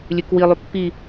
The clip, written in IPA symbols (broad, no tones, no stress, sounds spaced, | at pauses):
lʲ ʉ k w i lˠ y pː i